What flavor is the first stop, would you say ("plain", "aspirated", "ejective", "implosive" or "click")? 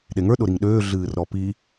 implosive